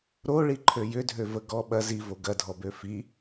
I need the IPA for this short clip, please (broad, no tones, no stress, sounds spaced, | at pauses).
ɾ o ɭ i ǃʰ ø j ʏ dʱ ø v ə ɡ ɔ ɓ ɐ z i v o ɡ ɐ dʱ ɔ b ø f i